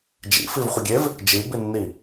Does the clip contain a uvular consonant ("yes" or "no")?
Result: yes